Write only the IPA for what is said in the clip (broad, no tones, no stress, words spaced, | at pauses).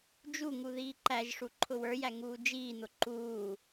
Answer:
d͡ʒuŋu ðiːǃæʒʂu ǃʰʊwə˞jæ ŋuːd͡ʒiːn̪ʊ ǃuː